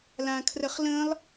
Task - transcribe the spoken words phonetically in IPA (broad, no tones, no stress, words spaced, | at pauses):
lãkʰrəχlə̃ːlˠ